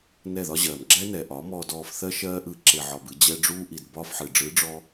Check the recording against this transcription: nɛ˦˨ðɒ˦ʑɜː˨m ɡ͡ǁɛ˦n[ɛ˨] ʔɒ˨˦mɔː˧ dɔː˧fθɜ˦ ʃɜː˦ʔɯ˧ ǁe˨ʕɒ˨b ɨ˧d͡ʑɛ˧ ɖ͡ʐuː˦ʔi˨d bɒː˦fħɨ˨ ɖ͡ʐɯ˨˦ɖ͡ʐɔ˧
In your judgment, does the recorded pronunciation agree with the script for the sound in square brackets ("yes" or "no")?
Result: yes